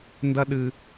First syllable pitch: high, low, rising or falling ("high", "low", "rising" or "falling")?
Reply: high